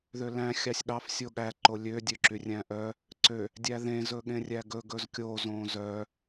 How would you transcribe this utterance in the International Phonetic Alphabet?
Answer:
ðølæ̃ xʲɑsʲɠɑf sʲoɠæ ǃolʲø dʲøǁyrʲæ̃ʔœ | ǀø | dʲæðẽ zɵɠẽrʲæɡɵ ɡɵzkʲo zõzœ

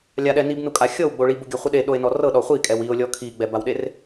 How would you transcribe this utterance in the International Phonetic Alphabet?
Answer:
lʲaɗɛ nibnukʼa xʲɤwɡ͡bo ɭibuɡʲaχʷɯ ɗeɗoe̯nɔ rɤɗɔ χʷikʼɛw io̯lʲɔ kʰiɡ͡bɛbawɗer

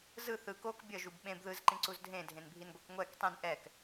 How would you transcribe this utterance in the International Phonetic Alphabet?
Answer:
zɯ θɯ kok bʲʌʒub ɓẽb ðɯzǃĩǀuz dʱẽdʱẽnbʱinɡʷɛk ŋʷɛk tˤĩn ʔɛk

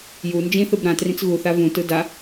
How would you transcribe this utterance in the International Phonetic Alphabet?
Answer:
ju nd͡ʒĩθɯb ɾãtrĩt͡s ɣuθa vũtɯ da

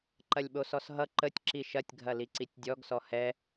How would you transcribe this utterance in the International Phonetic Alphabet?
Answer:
ǃɐlʲɓosɔsɦʌ ǃətʲ ǁiʃɐtʲ ɡʱɐliǀitʲdʲɔɡ sɔhɛ

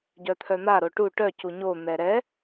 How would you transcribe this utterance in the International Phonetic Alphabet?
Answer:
ɟœt̪ʰœn̪a ɾoʈu ʈœ cuɲo n̪ɛɾɛ

